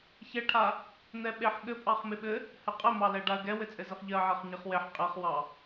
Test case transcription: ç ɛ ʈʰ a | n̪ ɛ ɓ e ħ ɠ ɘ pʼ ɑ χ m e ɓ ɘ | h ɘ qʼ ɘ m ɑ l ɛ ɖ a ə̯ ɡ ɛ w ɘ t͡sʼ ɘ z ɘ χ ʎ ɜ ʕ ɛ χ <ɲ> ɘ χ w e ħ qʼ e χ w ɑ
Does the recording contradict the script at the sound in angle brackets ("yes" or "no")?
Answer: no